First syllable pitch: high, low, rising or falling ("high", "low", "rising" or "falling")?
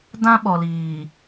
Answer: high